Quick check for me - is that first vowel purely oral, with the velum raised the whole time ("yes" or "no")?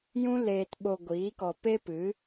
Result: no